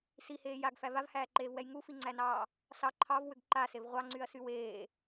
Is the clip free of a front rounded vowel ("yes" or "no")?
no